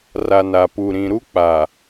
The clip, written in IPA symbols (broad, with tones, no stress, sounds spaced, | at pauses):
r a˨ n a˨ p u˨ ɾ ĩ˨ ɾ u˦ k͡p a˨